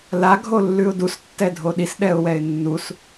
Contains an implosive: yes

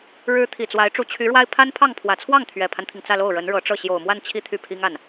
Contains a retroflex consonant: yes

